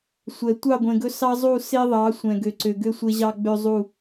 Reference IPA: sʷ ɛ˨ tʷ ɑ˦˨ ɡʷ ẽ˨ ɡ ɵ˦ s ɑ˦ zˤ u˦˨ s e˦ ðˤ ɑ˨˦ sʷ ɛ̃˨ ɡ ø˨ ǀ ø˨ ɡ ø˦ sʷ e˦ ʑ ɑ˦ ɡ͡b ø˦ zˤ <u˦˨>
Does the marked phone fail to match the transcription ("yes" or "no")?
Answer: no